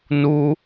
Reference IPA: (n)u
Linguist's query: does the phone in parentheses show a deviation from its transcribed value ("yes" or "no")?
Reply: no